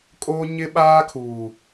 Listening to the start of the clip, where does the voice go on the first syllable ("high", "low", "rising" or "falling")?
high